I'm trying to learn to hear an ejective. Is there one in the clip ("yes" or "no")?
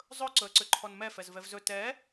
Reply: no